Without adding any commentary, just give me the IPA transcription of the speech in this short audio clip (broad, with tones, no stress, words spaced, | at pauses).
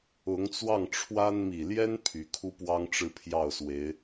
ʊ˧˥ŋt͡swɑ˥˩ŋʈ͡ʂʰwa˥n mi˨˩ljɛ˥n pʰy˧˥kʰu˥pwɑ˥ŋ ʈ͡ʂɻ̩˥˧pʰjɑ˥˩ʊ̯swe˧˥ɪ̯